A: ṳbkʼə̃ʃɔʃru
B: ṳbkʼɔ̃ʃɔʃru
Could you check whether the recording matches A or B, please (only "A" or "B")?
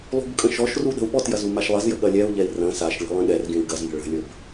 A